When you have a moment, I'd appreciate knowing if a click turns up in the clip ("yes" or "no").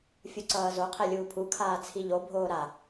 yes